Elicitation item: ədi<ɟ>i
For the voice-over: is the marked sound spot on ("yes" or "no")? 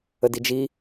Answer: no